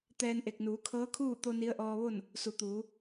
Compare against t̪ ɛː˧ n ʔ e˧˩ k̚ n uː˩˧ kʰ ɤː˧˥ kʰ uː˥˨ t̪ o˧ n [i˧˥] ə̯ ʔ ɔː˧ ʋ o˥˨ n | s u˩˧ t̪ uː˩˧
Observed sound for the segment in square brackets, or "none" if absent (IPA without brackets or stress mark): i˧˥